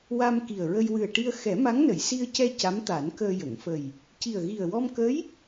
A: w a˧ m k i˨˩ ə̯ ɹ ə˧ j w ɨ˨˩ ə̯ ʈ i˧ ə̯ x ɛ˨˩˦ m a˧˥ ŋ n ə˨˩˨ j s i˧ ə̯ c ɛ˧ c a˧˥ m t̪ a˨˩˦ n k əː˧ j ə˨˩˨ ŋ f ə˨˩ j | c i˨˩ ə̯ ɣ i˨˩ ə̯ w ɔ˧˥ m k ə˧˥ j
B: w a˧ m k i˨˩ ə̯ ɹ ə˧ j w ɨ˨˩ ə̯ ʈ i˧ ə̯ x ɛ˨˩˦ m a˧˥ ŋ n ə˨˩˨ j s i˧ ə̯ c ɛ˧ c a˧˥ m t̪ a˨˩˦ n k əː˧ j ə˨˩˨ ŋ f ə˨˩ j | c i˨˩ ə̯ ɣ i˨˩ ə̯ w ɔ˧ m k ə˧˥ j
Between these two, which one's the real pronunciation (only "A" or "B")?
B